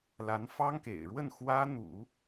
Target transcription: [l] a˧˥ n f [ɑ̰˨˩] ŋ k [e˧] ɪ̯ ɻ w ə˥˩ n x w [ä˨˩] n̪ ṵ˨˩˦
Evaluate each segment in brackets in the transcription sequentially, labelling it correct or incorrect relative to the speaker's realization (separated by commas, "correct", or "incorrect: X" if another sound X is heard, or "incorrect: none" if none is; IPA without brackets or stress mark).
correct, incorrect: ɑ˥, incorrect: ḛ˨˩, incorrect: ä˥